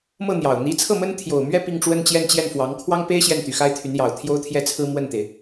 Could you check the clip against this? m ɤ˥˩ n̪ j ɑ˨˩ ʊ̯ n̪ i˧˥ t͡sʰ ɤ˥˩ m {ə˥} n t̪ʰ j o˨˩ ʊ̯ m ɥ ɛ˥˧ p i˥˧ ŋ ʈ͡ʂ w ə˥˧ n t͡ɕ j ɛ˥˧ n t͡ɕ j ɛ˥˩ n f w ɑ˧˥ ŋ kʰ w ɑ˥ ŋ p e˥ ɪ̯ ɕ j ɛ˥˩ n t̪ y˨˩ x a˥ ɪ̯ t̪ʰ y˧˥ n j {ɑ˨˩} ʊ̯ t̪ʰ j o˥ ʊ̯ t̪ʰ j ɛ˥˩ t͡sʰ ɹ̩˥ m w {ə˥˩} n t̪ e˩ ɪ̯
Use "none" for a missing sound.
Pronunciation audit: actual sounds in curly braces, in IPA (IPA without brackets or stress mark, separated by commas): ə˥, ɑ˨˩, ə˥˩